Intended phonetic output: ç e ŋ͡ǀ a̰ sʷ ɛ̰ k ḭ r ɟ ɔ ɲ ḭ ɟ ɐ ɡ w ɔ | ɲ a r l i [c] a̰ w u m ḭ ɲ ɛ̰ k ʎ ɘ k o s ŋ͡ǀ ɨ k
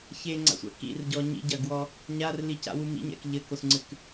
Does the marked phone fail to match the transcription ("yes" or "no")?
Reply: no